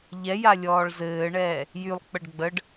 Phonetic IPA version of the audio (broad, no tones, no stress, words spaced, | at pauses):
ʎɛja lʲɔːɭzɘːɳɛː | jylˠk͡pəɖ ɡ͡bəɖ